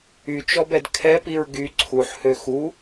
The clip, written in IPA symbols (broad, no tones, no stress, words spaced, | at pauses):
yt͡ʃɔbɛd kʰɛpiɹ ɡy ǀʰuħhø xu